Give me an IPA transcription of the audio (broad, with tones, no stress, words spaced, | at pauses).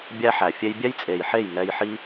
bʲæ˦ħæ˨ fʲe˧jbʲɛ˦jt͡sʼe˨jħe˦˨j ŋɛ˧jħi˦